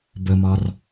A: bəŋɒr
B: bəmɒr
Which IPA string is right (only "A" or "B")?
B